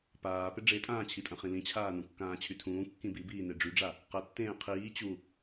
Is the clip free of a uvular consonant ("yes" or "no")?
no